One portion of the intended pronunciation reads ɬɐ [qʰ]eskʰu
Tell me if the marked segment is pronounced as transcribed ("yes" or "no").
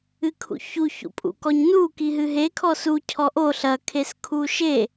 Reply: no